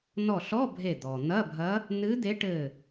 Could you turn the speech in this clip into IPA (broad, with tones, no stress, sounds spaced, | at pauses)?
n ɔ˧˩ ɬ ɔ˧˥˧ bʱ e˧˩ d̪ ɔ˩ n̪ ɐ˧˥˧ bʱ ɐ˧˥ | n ɨ˧˥ d̪ e˧˥ ʈ ɘ˧˩